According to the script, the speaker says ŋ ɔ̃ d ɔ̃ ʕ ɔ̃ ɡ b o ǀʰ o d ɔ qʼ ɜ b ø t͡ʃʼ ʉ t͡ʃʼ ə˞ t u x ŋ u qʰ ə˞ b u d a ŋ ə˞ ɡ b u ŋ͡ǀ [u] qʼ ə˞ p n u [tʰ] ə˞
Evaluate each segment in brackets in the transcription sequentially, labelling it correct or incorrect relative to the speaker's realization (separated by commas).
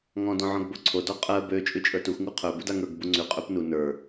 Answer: incorrect, incorrect